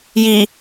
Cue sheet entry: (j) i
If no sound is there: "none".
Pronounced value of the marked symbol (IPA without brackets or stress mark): j